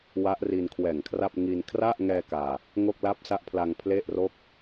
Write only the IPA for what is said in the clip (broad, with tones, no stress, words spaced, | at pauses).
wa˦˥ʔ ri˧n kʰwɛː˨˩ŋkʰra˥˩p̚ ŋi˧n kʰra˥˩ʔŋɛː˧ kaː˧ | ŋo˥˩k̚la˥˩p̚sa˥˩ʔpʰla˧ŋ pʰle˥˩ʔro˥˩k̚